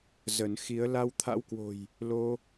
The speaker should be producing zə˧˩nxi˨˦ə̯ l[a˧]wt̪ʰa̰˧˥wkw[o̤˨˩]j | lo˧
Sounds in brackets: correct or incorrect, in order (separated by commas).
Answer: correct, correct